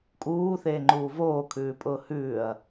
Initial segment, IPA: kʼ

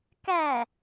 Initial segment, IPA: k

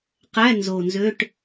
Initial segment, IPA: q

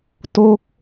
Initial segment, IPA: t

